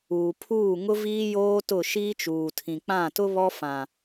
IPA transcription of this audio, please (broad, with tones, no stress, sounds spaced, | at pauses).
uː˨ pʰ uː˦˨ ŋ ʊ˦ v iː˦ j oː˦ t ʊ˦˨ ʃ iː˦ t͡ʃ uː˨ tʰ ĩ˨ k͡p ã˦˨ t ʊ˦ β ɔ˦ f ã˨